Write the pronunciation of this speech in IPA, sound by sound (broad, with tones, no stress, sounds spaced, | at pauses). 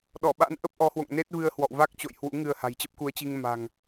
ɗ ɔ˧˩ ɓ a̰˧˥ n ʔ ə˦˥ p̚ ʔ ɔ˨˦ h w o̰˧˨ ŋ n e˦˥ t̚ v ɨ˧ ə̯ h w ɔ̰˧˨ w v a˦˥ k̚ t͡ɕ o̰˧˨ j h w ṵ˧˥ ŋ ɨ˧ ə̯ h a̤˨˩ j t͡ɕ ə˦˥ p̚ k u˨˦ ə̯ t͡ɕ i˧ ŋ m a̤˨˩ ŋ